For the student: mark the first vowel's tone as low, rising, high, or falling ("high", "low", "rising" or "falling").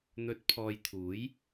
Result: rising